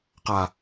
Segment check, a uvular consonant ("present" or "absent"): present